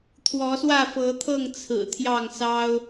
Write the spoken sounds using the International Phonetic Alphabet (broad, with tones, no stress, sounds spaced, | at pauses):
t̪ʰ w ɔ˨˦ s w ä˥˨ f ɤ˨˦ t̪ʰ ɤ˥˨ ŋ t͡sʰ ɹ̩˨˩ t̪ʰ j ɑ˥˨ ŋ s ɑ˦ ʊ̯